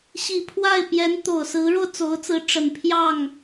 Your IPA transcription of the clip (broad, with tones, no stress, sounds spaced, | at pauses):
ɕ i˨˩ pʰ w a˥˩ ɪ̯ p j ɛ˧˥ n t̪ o˨˩ ʊ̯ s ɹ̩˧˥ ɻ o˧ ʊ̯ t͡s o˧˥ ʊ̯ t͡s ɹ̩˧˥ ʈ͡ʂ ə˨˩ n pʰ j ɑ˥˩ ŋ